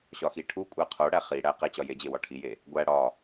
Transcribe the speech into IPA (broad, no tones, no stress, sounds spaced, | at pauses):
ɕ ɒ x i ʈʰ u kʷʼ æ qʰ o ɽ æ χ i ɽ æ q e t͡ɕ ɒ j e d͡ʑ e w ɒ ʈʰ i j e | ɡʷ æ ɽ ɒ